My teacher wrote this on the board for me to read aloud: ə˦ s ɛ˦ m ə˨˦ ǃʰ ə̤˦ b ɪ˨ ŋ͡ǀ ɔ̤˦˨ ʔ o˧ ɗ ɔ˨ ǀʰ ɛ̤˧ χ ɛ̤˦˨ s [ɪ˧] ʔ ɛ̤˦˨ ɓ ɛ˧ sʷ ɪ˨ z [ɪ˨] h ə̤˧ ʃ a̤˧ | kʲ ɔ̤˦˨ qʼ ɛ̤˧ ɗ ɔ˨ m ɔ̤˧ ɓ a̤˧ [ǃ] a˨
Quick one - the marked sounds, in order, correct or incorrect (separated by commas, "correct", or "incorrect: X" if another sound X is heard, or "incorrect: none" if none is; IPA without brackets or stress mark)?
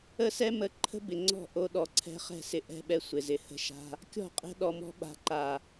incorrect: ɪ˨, correct, correct